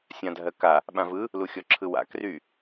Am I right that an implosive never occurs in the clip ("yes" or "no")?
no